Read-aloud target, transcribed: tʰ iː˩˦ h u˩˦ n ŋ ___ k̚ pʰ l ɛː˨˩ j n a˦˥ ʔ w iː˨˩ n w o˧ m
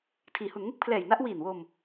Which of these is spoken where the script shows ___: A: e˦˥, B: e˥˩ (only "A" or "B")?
A